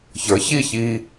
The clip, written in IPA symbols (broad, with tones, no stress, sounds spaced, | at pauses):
ç ə˞˩˥ ç i˥˩ ç i˧